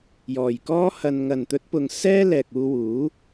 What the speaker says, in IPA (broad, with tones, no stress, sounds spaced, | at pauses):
j ɔː˨ j k ɔː˥ h ɐ˧ n ŋ ɐ˨ n t̪ ɵ˨˥ t̚ p ʊ˨ ŋ s ɛː˥ l ɛː˨ k̚ uː˧ w uː˨˥